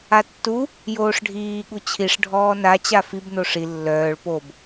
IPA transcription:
a tː u | j oː ʂ ɖʱ iː ɠ u t͡ɕʰ i ʂ ɖʱ ɔː n a t͡ɕ a f i b n o ʂ i lː œː ɭ p o b

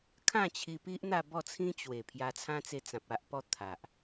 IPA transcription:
kʰ ã˥˧ t͡ɕʰ i˧ p i˦ ʔ n̪ a˥˧ b ɔ˥˧ t͡sʰ ĩ˦ t͡ɕ w e˨˩ pʰ j a˧ t͡sʰ ã˦ t͡s e˧ t͡s ã˨ p̚ a˦ ʔ p ɔ˦ t̪ʰ a˨ ʔ

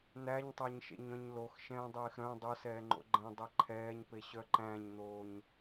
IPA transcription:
n̪ æ ɲ tˤ æ ɲ ʃ ḛ ɲ œ̃ ɲ l o x ʃ ɛ̃ː dˤ eː x ɾ œ̃ dˤ o s ɛː ŋ͡ǃ o̰ ɡ͡ǃ ɛ̃ dˤ e ǃʰ ɛː ɲ p e ɕ œ ǃ æ̃ ɲ n̪ oː ɲ

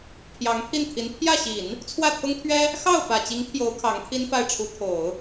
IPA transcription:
pʰ j ɑ˧˥ ŋ pʰ i˥˩ n t̪ʰ i˧˥ n pʰ j ä˥˩ ɕ i˨˩˦ n | t͡sʰ w ä˥˩ t̪ʰ ʊ˥ ŋ t̪ʰ ɥ ɛ˥ | x ɑ˥˩ ʊ̯ f ä˨˩ t͡ɕ i˧˥ ŋ t̪ʰ j o˧˥ ʊ̯ kʰ ɑ˧˥ ŋ t̪ʰ i˥ n f a˥˩ ɪ̯ ʈ͡ʂʰ u˧˥ t̪ʰ o˨˩˦ ʊ̯

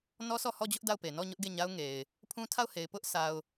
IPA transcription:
n ɔ˦ sʰ ɔ˦˨ h ɔ˦˨ d͡ʑ ʊ˦ ʔ d a˦˨ ʊ̯ p e˨ n ɔ˦˨ ɲ ʊ˦ ʔ ɡ e˦˨ ɲ a˦ ʊ̯ ŋ e˨ ɪ̯ | pʰ ũ˦ tʰ a˦˨ ʊ̯ h e˨ ɪ̯ p ʊ˦ ʔ s a˦ ʊ̯

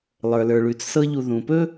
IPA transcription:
lˠ ə˞˩ l ə˞˩ ɭ ʉ˩ t͡s s ɤ˦ ʎ u˨ ð ũ˩ p ɵ˥

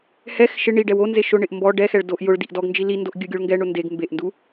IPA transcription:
h ɛ x ʃ ɪ ɳ i ɖ ɛ w o n z e ʃ ʊ ɳ ɪ ʔ m b ɔ ɖ ɛ x ɛ ɭ d o ʔ j ʊ ɭ d i ʔ d ɔ ɡ n d͡ʒ i l i n d o ʔ ɡʲ ʊ ɡʲ o ɭ ŋ ɡ ɛ ɳ ʊ n d e ɡ m b e ʔ n d u

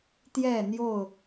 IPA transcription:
t̪ j ɛ˥˨ n̪ j o˥˨ ʊ̯

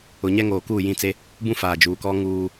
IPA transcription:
ʊ˨ ɲ ɛ˦ ŋ oː˨ k uː˦˨ j ĩ˦˨ t͡s e˦ | b ũ˦ f aː˨ d͡ʒ uː˨ k ɔ˦ ŋ uː˦

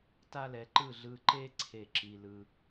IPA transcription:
t a˦ l ɛ˨˦ ǃ ɯ˦˨ ɮ ɯ˧ ǃ e˦ ǀʰ e˦˨ ǁ i˧ l ɯ˧

